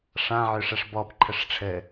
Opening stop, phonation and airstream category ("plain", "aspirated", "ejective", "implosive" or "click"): plain